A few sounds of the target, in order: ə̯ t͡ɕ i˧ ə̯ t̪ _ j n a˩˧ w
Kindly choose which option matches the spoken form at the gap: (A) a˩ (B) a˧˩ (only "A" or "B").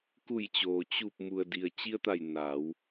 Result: B